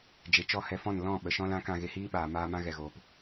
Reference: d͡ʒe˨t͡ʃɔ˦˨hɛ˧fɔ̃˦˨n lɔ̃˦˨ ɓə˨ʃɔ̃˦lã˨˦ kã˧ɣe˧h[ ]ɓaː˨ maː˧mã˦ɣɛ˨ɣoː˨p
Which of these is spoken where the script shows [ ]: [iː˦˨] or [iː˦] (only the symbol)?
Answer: iː˦